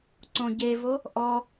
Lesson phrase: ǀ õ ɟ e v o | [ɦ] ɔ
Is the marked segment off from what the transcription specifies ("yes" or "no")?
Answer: yes